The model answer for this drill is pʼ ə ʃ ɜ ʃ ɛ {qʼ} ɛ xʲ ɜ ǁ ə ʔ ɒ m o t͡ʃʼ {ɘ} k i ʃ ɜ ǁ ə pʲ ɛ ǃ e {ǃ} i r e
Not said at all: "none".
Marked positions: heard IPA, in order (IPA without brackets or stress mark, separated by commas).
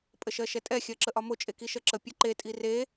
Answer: tʼ, e, tʼ